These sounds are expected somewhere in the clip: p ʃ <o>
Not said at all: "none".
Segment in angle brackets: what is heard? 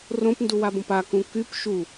u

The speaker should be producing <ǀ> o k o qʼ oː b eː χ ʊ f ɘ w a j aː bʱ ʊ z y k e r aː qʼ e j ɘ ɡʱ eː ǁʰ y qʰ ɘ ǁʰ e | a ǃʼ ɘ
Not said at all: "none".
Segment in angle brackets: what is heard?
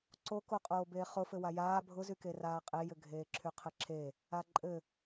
ǀ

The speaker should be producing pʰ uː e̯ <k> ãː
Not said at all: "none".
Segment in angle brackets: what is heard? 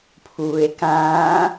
k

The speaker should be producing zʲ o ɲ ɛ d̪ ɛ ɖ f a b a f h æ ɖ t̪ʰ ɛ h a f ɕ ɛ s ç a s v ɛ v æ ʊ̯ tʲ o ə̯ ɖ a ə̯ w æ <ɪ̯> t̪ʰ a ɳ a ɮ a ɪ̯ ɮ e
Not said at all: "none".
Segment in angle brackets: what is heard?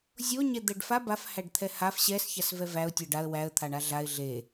ə̯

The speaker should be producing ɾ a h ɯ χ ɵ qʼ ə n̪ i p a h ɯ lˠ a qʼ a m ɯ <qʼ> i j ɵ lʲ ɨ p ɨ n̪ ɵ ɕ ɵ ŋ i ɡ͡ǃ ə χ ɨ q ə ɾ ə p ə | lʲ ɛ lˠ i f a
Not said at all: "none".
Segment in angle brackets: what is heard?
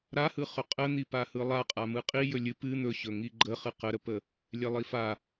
qʼ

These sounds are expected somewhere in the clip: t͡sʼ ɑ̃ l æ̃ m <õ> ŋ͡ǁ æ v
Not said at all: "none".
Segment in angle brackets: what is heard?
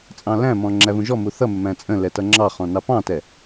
ɔ̃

